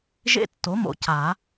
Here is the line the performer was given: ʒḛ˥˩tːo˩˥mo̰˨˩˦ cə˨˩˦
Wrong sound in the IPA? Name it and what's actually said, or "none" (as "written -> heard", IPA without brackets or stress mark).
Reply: ə˨˩˦ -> a˨˩˦